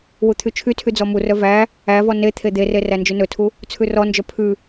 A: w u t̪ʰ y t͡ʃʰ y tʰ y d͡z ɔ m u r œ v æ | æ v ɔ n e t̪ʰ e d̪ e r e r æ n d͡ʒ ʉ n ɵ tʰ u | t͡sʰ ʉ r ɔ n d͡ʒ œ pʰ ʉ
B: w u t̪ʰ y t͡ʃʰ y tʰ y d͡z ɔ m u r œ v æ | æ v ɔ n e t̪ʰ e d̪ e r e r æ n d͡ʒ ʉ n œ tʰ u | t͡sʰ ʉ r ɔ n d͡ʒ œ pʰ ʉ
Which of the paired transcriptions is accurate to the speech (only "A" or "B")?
A